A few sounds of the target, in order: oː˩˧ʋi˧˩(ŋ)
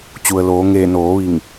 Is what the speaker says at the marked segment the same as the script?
yes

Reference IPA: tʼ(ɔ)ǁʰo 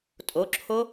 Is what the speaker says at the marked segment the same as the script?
no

